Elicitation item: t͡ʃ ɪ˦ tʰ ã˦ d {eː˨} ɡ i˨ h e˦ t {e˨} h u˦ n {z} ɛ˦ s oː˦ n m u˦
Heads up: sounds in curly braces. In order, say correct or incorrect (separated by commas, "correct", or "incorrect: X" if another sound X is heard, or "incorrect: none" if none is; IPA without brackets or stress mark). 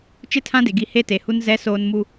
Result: incorrect: e˨, correct, correct